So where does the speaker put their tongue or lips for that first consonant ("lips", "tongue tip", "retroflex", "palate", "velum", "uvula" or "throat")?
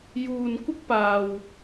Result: palate